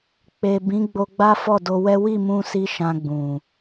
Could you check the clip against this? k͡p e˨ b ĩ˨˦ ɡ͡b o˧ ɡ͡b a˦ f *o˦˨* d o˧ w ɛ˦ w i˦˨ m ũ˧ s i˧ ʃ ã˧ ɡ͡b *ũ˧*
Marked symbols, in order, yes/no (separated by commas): no, no